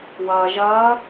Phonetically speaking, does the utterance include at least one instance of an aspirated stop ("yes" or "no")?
no